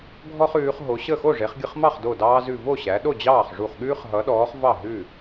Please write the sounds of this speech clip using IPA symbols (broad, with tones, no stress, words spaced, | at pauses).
ɡʱɔ˥χʉː˩˧χ ɦo˩˧ɕə˥˩ xo˥˩ʐe˩˧χɡʲə˧χ mɑ˥˩χdo˧˩dɑː˧zʉ˧˩ vo˥˩ɕæ˩˧ɗo˥˩ d͡ʑɑː˥˩χʐu˧˩χɠʉː˥χ ɦʌ˩˧ɗɔː˩˧χ vɑ˥˩ɦʉ˥˩